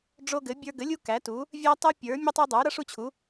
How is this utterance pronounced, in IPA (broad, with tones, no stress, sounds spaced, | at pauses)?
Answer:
ɖ͡ʐ o˦ ɡ ɘ˩˥ bʲ ə˞˦ ɡ ə˩˥ lʲ u˦ k æ˩˥ t u˩˥ | vʲ æ˦ tˤ u˦ pʲ ə˞˩˥ mʲ ʌ˦ tˤ ə˞˦ dˤ ə˞˩˥ ɾ ʌ˦ ʂ u˦ t͡ɕʰ u˩˥